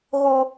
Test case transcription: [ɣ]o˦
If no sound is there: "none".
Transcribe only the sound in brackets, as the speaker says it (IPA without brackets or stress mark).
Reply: ɣ